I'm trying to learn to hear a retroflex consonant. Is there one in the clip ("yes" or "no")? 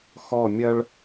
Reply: yes